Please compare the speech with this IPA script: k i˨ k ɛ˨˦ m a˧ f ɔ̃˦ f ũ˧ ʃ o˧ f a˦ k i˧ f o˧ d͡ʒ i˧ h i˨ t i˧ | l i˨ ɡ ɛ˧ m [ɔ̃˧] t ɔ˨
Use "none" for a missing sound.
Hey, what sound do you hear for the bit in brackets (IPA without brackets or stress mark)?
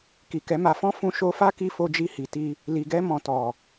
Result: ɔ̃˨